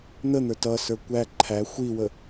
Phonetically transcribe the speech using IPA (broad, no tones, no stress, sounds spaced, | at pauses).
n̪ ə n̪ ə˞ t ʌ s ə˞ kʷ æ ǃʰ æ xʷ i w ə